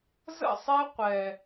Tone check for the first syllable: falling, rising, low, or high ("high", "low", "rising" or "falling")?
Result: falling